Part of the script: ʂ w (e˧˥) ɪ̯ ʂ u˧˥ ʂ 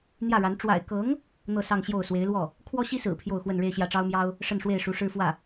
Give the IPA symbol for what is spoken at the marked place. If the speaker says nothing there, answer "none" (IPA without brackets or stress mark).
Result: e˥˩